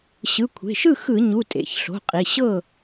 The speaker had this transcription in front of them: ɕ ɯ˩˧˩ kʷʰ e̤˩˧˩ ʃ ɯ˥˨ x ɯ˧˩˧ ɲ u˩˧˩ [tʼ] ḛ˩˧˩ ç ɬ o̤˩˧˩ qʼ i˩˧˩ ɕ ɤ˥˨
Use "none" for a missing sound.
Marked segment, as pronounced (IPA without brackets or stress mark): tʼ